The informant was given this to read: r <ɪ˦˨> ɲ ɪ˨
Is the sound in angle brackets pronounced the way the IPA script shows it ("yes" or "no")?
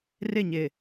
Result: yes